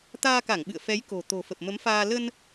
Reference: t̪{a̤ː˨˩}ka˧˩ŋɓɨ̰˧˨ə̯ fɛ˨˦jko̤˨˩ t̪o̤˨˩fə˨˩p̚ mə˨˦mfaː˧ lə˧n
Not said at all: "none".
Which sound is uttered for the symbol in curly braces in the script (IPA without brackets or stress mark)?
aː˧